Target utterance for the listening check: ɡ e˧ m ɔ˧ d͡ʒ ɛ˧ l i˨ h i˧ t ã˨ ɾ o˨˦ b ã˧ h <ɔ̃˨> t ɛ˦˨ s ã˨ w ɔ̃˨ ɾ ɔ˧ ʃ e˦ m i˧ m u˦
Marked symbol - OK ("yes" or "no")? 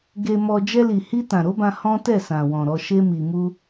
no